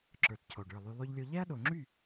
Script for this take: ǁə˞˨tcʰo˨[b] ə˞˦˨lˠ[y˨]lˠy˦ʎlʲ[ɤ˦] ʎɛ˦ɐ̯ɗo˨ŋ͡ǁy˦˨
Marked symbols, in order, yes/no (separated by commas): no, no, no